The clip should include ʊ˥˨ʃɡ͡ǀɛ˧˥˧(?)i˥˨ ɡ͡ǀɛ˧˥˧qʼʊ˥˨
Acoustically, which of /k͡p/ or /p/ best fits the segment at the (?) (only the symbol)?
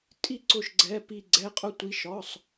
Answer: p